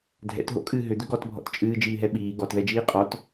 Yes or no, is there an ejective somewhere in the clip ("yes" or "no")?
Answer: yes